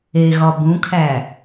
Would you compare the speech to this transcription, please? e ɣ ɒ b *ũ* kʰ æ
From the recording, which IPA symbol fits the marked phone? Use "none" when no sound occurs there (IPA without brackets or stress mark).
ũ